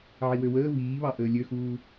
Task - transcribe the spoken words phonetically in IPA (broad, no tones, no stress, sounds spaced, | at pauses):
ʕ i w ø w əː v iː β ɑ ʔ əː lʲ ø x uː